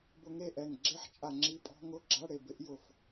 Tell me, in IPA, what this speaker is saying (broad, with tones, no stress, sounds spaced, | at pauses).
b ʊ˧ ŋ e˥˩ ʔ ɛ˧˩ ŋ ɡ͡ǁ e˦˥ ħ t͡ʃʼ a˧ ŋ͡ǁ i˦˥ pʼ ɔ̤˦˥ ŋ ʊ˧˥˧ ɡ͡ǁ a˧˥˧ ɽ e˧ b ɪ˦˥ ʔ j ʊ˧˩ f